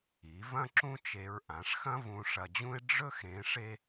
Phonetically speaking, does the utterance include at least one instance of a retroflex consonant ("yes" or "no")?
yes